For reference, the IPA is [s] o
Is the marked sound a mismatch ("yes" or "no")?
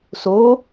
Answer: no